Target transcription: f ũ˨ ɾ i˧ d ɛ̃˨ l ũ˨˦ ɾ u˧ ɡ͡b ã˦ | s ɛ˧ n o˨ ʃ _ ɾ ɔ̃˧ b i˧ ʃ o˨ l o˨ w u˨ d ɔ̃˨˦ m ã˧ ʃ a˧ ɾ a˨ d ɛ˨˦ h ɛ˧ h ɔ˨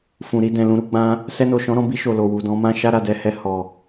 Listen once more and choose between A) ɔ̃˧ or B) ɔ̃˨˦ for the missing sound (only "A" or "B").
B